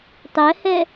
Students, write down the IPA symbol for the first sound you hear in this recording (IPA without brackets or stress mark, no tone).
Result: tˤ